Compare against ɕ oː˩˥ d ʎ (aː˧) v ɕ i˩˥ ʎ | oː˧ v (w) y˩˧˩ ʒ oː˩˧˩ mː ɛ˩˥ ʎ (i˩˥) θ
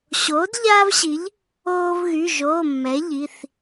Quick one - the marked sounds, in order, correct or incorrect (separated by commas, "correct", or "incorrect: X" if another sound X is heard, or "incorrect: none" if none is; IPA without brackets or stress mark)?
correct, incorrect: ɣ, incorrect: i˩˧˩